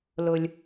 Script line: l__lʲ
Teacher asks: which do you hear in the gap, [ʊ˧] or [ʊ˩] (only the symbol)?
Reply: ʊ˩